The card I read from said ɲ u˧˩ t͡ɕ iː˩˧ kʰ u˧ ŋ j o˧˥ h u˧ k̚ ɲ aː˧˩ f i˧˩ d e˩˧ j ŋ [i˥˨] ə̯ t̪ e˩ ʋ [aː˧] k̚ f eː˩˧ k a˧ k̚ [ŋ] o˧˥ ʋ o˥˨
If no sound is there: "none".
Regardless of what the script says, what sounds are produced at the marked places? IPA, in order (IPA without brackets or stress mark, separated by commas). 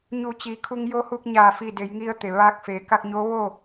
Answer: i˧, aː˧, ɲ